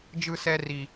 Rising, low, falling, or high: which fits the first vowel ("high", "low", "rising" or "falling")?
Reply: high